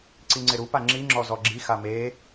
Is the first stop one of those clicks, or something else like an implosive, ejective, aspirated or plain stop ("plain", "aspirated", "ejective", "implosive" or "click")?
click